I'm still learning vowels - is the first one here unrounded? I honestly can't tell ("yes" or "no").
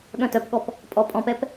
no